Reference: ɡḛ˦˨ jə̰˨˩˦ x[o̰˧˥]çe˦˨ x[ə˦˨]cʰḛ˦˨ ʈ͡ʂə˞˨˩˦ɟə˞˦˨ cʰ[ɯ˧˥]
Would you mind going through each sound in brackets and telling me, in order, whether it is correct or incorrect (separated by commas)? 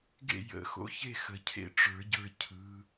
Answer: correct, incorrect, correct